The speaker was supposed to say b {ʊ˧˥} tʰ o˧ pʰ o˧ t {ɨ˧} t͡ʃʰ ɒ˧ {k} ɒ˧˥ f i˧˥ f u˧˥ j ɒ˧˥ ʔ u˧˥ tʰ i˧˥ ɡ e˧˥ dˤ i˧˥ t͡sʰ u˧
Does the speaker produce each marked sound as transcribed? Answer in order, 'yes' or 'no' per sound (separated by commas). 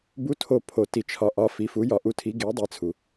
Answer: no, no, no